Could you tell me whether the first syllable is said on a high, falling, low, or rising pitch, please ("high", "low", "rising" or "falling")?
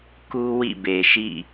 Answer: high